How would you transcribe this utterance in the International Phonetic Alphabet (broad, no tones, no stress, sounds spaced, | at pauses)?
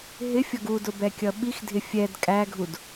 ɦ ɪ fʲ ʌ ɡ u d ʊ b ɛ kʲ ʌ ɓ i x dʱ ɪ fʲ ɛ d kʼ æ ɡʱ u d